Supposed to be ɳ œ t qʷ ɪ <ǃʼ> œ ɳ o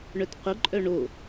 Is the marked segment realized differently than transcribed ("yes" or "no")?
no